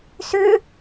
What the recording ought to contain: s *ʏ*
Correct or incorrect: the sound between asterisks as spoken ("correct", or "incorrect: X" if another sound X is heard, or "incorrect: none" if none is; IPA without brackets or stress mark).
correct